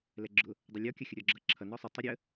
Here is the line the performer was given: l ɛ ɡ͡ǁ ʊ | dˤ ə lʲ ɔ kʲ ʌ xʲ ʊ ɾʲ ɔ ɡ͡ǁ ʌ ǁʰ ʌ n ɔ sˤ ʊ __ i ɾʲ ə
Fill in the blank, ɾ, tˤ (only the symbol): tˤ